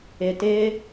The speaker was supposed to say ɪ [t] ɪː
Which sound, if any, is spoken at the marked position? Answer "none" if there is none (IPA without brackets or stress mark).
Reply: t